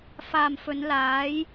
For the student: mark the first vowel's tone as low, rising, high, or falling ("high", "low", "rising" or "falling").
low